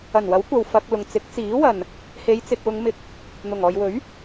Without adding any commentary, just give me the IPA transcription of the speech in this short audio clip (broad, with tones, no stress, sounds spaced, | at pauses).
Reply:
ɐ˨˩ n w ɐ˨˥ w kʷ ɐ˨ w f ɐ˧ k̚ l ʊ˨ ŋ t͡s ɪ˨˥ k̚ t͡s iː˨˥ w ɐ˨ n | h e˨˧ j t͡s ɪ˨ k̚ w ʊ˨˧ ŋ m ɪ˨ k̚ | n̪ ʊ˨˩ ŋ ɔː˨ j w ɵ˨˥ ɥ